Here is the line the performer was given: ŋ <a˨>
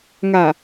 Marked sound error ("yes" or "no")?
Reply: no